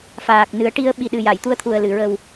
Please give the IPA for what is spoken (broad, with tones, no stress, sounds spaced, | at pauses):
f aː˨˩ k̚ n ɨ˨˩˦ ə̯ ʈ i˧ ə̯ ɓ i˨˩ ɗ ɨ˨˩ j a˨˩˨ j t̪ u˧ ə̯ t̪ʰ u˨˩ ə̯ l ɨ˨˩˨ ɹ ə˨˩ w